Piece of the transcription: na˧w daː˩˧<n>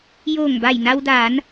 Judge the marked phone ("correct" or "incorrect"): correct